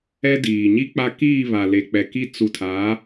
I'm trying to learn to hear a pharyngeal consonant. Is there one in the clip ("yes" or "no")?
no